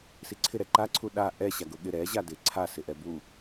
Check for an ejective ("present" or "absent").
absent